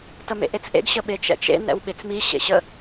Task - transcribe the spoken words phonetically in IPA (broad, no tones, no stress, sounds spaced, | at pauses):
t ə m ḛ ʔ e t͡s ʔ ḛ ɡ ɕ ə ɓ e t͡ʃ ɛ̰ t͡ʃ ḛ n ɛ̰ w ɓ e t͡s m i ɕ ḛ ɕ ə